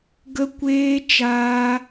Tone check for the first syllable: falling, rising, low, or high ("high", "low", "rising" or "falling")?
high